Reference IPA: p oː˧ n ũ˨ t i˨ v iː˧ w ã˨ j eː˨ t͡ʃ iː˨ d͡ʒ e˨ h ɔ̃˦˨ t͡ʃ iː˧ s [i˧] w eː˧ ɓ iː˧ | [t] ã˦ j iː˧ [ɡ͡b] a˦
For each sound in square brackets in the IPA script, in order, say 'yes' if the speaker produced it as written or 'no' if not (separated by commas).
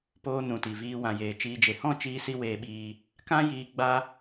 yes, no, yes